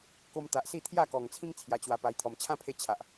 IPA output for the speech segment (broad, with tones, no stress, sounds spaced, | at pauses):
k o˧ m t̪ a˨ ʔ s i˥˧ t̪ʰ j a˥˧ k ɔ˨˩ ŋ t͡sʰ ĩ˦ ŋ t͡sʰ j a˧ t͡ɕ w a˧ p a˧ j t̪ʰ ɔ˨˩ m t͡ɕʰ ã˦ pʰ e˧ t͡ɕʰ a˨ ʔ